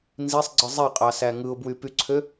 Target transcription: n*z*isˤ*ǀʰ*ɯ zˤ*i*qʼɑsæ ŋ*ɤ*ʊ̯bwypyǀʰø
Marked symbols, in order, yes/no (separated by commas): yes, no, no, no